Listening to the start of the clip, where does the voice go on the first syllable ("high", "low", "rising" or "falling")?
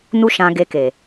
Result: high